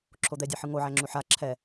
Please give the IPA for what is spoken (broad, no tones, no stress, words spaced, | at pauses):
ǁʰod̪ɛdʲæħɯ ŋoʕæŋ͡ǁu ħa ǁʰɛ